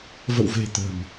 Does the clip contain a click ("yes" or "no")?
no